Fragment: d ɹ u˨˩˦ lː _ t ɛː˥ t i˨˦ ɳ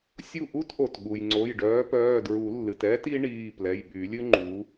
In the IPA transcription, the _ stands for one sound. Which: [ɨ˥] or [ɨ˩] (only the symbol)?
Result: ɨ˩